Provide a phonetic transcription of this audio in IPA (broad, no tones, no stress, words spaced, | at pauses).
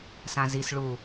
sãzis ɭu